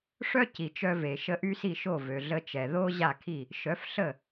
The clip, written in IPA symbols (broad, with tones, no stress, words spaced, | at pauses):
ʂœ˥ci˩ t͡ʃœ˧ ve˩ʃə˧ ʔy˥si˥˩ʃo˥˩ vø˩ɮə˧t͡ʃɛ˩ ðo˥ʑa˥˩kʰi˥˩ | ʃœ˩˥fɬə˥˩